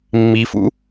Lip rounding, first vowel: unrounded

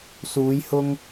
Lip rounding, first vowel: rounded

